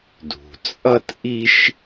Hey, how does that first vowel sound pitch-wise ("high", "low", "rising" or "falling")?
low